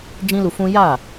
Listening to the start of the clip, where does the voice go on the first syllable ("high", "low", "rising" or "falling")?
high